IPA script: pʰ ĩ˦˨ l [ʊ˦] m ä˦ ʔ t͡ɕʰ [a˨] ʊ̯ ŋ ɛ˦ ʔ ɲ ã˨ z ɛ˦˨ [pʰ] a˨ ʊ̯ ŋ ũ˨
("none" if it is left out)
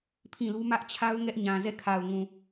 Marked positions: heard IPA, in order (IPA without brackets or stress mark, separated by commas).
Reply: u˦, a˦, kʰ